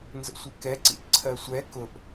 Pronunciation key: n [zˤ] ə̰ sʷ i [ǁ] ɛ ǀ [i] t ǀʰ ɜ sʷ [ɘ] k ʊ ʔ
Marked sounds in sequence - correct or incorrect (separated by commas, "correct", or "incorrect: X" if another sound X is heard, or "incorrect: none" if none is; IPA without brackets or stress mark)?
incorrect: z, incorrect: k, incorrect: ḭ, incorrect: ɛ